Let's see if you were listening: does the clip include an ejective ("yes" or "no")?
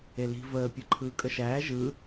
yes